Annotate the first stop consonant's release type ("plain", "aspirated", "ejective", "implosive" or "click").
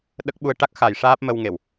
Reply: implosive